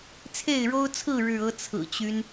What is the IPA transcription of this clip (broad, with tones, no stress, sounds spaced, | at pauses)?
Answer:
t͡sʰ e˥˨ ɪ̯ ɻ o˦ ʊ̯ t͡sʰ ɹ̩˥˨ ɻ ɻ̩˥˨ ɤ˦ t͡sʰ ɹ̩˨˩ t͡ɕ y˦ n